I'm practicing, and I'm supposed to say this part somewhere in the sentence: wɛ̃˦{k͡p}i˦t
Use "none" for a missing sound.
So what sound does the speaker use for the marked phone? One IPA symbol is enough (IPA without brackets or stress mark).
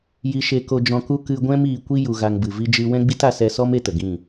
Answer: ɡ͡b